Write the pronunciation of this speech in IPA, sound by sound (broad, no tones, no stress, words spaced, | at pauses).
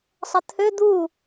sˤɐt̪ʰø d̪u